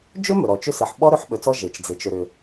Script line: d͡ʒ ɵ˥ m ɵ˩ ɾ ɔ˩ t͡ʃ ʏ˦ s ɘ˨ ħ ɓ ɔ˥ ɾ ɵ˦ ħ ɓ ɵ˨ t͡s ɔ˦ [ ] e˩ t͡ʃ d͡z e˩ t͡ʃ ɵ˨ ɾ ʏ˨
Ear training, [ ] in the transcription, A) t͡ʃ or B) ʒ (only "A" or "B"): B